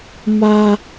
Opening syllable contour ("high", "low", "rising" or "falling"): high